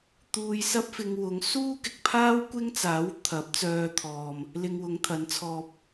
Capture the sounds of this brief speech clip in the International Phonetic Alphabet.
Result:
t̪ uː˧ j s ɐ˥ p̚ f ɪ˧ ŋ w ʊ˨˧ ŋ s uː˥ k ɪ˨ k̚ pʰ aː˥ w kʷ ɪ˥ ŋ t͡s aː˨˥ w t̪ʰ ɐ˨˥ p̚ t͡s œː˧ t̪ʰ ɔː˨ m | l ɪ˧ ŋ w ʊ˨˧ ŋ t̪ʰ ɐ˨˥ n t͡sʰ ɔː˧ p̚

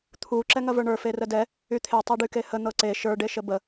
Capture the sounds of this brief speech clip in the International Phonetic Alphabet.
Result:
t̪ʰ u ǁ ɛ ŋ ɐ v ə˞ ɳ ə˞ f e r ə d ɛ | y t̪ʰ e tˤ e ɖ y k e h ə n̪ ɤ ǀ e ʃ ə˞ ɖ e ʃ ə b ə

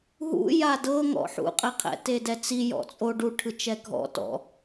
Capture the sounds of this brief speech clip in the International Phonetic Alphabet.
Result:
ɦ ṵ j a d ɤ ŋ ɔ̰ ħ ṵ qʼ ɛ qʰ ɛ̰ t e d ɛ t͡s i j ɔ̰ t͡sʼ o ɖ u ʈʰ ɯ t͡ʃ ɛ ɡʱ ɔ̰ t ɔ̰

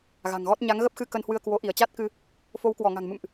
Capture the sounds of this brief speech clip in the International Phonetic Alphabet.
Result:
ɣ a̤˨˩ ŋ ɣ ɔ˦˥ t̚ ɲ a˨˦ ŋ ɣ ə˦˥ p̚ x ɨ˧ k ə˧ n h w ɨ˧ ə̯ k w o˨˦ ʔ i˧˩ ə̯ t͡ɕ a˦˥ t̚ k ɨ˧ | f o˨˦ w k w ɔ˧˩ ŋ a̤˨˩ ŋ m ɨ̰˧˨ m ʔ

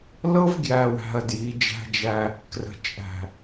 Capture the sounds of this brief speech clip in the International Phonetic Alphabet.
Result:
l ɤ˦ v ɡ j æ˨ w æ̤˨ ɐ̯ d j i˨˦ d͡ʒ æ̤˦ d͡ʒ æ˦ | k r ə̤˨ t͡ʃʼ æ̤˨

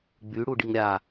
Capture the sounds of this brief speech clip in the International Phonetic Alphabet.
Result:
ɡ͡b y ɽ u ɖ i ŋ ɾʲ a

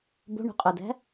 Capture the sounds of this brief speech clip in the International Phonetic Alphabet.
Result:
b o̤ ɳ ṳ qʼ o d æ̤

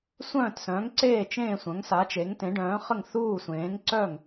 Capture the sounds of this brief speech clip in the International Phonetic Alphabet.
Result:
sʷ œ̃ː˥˩ t s œ̃˩˥ ŋ ǀ eː˥˩ t͡ʃ ẽː˥˩ sʷ œ̃˩˥ ŋ s a˩˥ t͡ʃ e˩˥ ŋ t ẽ˩˥ ɖ œ̃ː˩˥ χ ə˥˩ ŋ θ uː˥˩ sʷ ẽː˩˥ ŋ ǀ œ˥˩ ŋ

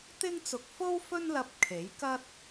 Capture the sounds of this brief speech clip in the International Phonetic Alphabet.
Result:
t̪ ɪ˥ ŋ t͡s ʊ˧ k̚ f o˥ w f ɵ˥ n l ɐ˧ p̚ kʰ e˨˥ j k ɐ˥ t̚

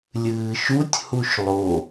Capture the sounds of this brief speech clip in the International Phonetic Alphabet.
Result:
lʲ ɨː ʃ u tʲ h u ʃ lˠ o

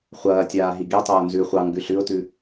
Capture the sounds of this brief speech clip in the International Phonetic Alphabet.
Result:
χʷ ɐː tʲ aː ɦ i ɡ i tˤ oː n z ʉ χʷ ɑ ŋ ɡ ʉ ɬ ʉ ʊ̯ t ʉ

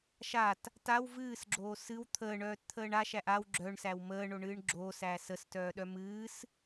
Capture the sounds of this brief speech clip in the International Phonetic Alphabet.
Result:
ʃ a t | t a w v ɨː s ɡ͡ǁ oː s ɨ w t̪ʰ əː ɳ œː t t̪ʰ əː ɳ a ʃ æ ʔ a w ɡ͡ǁ œ ɳ s æ w m əː ɳ o ɳ ɨː ɳ ɡ͡ǁ oː s æː s ə s t œː ɗ œ m ɨː s

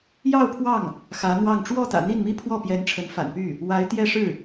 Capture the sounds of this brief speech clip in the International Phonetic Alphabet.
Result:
j ɑ˥˧ ʊ̯ pʰ w ɑ˥˩ ŋ | x ä˧˥ n̪ w ɑ˥˧ ŋ ʈ͡ʂ w ɔ˥˩ t̪ ä̰˨˩ n̪ i˥˩ n m i˥ pʰ w ɔ˥˩ p j ɛ˧˥ n ʈ͡ʂʰ ə˧˥ n f a̰˨˩ n p y˥˩ | w a˧˥ ɪ̯ t̪ j ɛ˥˧ ʂ ɻ̩˥˩

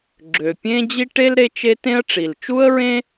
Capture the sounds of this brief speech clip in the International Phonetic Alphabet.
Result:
ɡ͡ǁ ø˩ pʲ ẽ˥ d͡ʑ i˥ ʈ e˥ l ɾ e˥ t͡ʃ e˥ t ẽ˥ ə̯ ʈ͡ʂ i˩ l t͡ʃ u˥ ə̯ ɹ ẽ˥

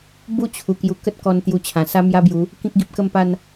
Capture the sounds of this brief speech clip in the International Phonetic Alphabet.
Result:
b u˥˧ t͡ɕʰ u˨˩ k j u˧ k ə˦ t̚ k ɔ˧ n t̪ j u˧ t͡ɕʰ ã˨˩ s a˦ m j a˦ b j u˨˦ | k ĩ˦ k̚ ɡ i˨ p̚ k ə˥˧ m p a˥˧ n

